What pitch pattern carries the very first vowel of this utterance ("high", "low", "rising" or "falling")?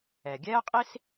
low